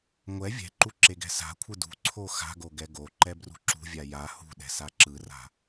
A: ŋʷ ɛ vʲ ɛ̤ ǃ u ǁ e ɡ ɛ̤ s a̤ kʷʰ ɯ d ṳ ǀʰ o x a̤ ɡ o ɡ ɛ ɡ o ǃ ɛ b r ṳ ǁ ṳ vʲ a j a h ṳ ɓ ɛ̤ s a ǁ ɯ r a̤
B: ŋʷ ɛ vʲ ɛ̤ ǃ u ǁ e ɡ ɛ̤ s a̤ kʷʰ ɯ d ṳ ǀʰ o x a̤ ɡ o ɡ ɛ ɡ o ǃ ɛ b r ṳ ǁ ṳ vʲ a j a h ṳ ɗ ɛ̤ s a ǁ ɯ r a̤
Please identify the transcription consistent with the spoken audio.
B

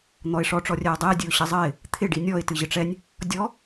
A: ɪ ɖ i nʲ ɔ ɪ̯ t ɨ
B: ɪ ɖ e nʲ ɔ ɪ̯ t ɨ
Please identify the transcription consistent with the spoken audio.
A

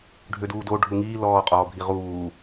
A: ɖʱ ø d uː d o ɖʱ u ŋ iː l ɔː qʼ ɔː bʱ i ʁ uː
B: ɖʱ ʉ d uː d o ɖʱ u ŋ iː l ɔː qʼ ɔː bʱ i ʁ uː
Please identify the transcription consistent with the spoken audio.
A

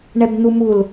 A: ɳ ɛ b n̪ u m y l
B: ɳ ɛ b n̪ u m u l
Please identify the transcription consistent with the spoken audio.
B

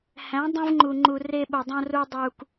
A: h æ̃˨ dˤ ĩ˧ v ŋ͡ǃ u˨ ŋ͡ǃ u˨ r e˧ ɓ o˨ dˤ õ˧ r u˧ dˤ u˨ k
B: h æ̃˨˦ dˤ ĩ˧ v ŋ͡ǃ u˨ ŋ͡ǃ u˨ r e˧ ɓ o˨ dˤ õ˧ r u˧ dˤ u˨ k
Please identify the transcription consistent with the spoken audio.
B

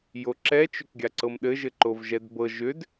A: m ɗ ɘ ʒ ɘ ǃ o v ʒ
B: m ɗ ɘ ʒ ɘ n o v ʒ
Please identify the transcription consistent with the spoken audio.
A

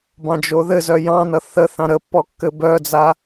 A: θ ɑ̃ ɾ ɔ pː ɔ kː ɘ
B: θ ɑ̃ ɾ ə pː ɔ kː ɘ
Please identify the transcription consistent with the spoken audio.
B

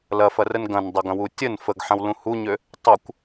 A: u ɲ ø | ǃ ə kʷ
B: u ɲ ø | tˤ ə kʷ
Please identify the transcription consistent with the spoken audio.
B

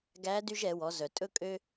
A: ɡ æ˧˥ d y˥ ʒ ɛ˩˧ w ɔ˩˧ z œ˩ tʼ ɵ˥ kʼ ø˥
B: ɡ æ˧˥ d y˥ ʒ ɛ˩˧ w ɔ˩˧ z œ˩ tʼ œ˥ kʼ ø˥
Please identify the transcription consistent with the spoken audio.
A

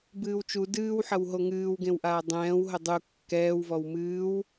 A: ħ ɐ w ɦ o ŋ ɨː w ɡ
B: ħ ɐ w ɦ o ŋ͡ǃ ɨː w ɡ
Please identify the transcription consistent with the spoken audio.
A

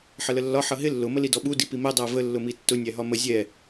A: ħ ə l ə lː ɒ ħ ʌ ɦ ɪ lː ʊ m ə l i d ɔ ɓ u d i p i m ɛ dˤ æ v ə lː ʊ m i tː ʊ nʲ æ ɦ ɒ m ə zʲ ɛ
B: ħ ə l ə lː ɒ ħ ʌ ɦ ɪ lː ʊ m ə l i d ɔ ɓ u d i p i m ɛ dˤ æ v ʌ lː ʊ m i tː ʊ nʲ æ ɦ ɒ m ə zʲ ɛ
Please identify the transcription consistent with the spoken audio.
A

